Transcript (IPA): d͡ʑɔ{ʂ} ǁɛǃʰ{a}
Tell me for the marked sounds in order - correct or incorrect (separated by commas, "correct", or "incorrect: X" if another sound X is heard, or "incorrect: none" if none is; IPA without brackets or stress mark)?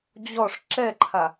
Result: correct, correct